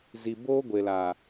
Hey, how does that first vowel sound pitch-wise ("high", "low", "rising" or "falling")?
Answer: low